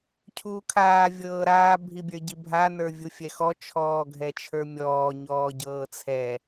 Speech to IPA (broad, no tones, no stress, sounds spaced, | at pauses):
cʰ uː kʰ aː vʲ ɤː ɾ aː bʱ i bʲ ə˞ ɟ i bʱ a n ə˞ vʲ u fʲ ɛ x ɔ t͡ʃʰ ɔː ɡʱ ɛ t͡ʃʰ ə˞ mʲ ɔː ɲ ɔː ɟ ɤː t͡sʰ ɛ